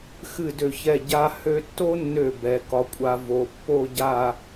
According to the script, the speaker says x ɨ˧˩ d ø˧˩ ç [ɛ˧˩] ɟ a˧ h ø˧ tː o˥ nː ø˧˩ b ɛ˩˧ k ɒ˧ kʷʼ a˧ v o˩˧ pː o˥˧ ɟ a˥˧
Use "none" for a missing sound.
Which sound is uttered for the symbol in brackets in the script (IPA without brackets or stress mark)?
ɛ˧˩